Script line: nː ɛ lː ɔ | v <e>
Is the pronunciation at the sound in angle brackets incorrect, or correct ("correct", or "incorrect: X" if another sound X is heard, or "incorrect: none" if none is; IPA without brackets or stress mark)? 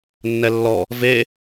correct